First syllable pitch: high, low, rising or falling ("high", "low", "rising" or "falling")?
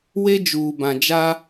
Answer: high